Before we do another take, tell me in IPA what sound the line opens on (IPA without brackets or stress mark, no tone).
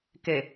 k